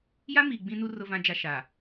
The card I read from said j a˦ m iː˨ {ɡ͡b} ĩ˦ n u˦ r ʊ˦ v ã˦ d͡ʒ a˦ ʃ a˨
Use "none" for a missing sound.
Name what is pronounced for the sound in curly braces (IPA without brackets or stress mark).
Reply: ɡ͡b